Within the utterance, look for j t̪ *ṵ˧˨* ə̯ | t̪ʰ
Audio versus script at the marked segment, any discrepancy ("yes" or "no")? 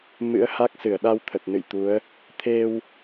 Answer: yes